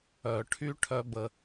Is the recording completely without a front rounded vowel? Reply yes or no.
no